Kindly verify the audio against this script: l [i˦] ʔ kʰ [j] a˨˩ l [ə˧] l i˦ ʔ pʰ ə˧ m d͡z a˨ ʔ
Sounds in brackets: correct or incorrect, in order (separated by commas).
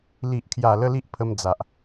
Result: incorrect, correct, correct